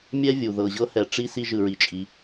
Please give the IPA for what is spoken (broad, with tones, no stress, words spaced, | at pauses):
mʲɛ˥vʲu˩ ðɤ˩ʑɤ˥hɛ˩ʈ͡ʂi˥ si˥ʒɯ˩ɹi˩t͡ʃʼi˩